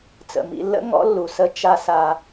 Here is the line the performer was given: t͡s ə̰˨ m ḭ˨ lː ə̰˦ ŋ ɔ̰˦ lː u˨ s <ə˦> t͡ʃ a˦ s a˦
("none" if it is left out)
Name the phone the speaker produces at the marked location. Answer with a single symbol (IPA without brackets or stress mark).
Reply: ə˦